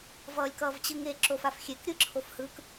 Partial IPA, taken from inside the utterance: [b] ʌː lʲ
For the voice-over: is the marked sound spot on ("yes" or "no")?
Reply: no